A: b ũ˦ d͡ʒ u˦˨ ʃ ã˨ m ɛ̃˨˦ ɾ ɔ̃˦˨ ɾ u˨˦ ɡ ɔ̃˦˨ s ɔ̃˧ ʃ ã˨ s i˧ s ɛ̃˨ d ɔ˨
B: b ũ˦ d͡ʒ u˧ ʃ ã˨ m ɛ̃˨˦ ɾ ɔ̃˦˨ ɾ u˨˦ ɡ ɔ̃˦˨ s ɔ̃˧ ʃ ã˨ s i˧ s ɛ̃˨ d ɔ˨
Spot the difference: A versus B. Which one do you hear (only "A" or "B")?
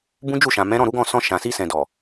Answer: A